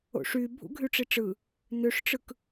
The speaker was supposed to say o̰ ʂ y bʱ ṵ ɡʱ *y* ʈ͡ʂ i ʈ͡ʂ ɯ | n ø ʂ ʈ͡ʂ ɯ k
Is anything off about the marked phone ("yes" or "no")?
no